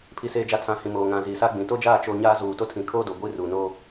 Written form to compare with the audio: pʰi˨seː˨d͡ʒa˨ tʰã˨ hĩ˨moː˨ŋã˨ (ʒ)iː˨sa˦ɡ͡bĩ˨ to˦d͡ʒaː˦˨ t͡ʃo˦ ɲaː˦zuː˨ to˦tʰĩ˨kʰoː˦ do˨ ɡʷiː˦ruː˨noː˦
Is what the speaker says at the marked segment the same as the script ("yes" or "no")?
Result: no